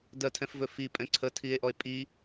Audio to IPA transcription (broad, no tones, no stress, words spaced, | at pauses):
dɜtʰɛ̃fvɵ fi pʼɛ̃ǀʰətʰie̯ʔɔe̯ pʼi